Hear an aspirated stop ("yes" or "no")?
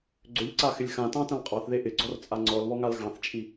no